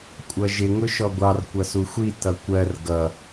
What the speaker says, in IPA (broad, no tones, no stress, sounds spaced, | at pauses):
kʷʼ ʌ ʒ ɪ ŋ ʊ ʃ ɔ ɡʷ ɑ r kʷ ʌ s u xʷ i t ʌ kʷ ɜ r ɡ ʌ